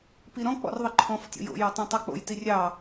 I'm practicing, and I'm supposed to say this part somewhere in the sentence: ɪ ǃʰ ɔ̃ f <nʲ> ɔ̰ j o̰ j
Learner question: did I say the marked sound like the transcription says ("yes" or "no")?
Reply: no